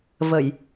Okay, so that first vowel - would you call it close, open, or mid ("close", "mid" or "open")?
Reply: mid